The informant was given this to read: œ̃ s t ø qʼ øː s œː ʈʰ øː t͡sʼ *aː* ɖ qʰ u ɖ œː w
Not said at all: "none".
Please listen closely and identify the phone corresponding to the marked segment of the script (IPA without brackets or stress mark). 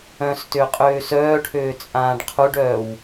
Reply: ãː